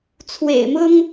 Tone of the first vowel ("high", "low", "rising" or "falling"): low